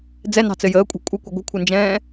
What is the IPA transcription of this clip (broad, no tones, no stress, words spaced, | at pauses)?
d͡zɛnɑ̤t͡sɘ jəːkʷʼɑ̤ kʷʼɘkʷə ɡʷə̤kʷʰɘnd͡ʒɛ̃ː